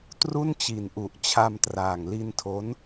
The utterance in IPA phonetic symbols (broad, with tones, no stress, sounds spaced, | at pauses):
t r u˥˩ n t͡ɕ i˨˩ n ʔ u˨˩ ʔ t͡ɕʰ a˧ m t r aː˨˩ ŋ l i˧ n tʰ o˦˥ n